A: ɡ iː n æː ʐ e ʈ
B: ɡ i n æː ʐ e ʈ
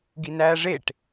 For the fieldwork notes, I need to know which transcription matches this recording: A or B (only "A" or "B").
B